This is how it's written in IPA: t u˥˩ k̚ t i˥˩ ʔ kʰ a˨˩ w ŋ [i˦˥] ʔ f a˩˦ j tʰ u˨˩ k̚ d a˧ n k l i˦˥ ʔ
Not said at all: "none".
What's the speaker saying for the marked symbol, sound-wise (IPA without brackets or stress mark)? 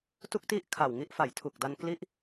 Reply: i˦˥